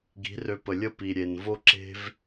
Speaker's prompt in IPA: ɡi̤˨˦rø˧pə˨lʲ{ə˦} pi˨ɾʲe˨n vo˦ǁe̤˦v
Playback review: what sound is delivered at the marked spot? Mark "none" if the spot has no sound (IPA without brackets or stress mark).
ə˦